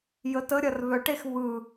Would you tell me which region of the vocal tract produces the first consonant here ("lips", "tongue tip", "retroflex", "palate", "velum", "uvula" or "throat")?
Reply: palate